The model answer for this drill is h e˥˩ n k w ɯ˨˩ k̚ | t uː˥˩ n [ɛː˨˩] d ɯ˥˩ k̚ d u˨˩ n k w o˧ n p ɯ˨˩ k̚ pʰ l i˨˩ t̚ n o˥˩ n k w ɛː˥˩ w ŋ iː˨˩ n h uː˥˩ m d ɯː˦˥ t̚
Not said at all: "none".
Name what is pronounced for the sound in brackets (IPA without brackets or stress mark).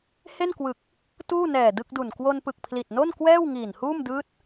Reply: ɛː˨˩